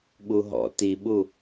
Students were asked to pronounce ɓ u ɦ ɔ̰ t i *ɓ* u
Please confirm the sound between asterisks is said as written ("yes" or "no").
yes